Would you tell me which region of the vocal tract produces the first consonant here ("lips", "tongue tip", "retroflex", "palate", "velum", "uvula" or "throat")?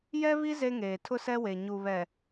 palate